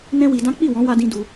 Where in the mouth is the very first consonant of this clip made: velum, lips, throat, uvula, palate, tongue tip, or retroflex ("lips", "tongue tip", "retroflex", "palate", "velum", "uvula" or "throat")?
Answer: tongue tip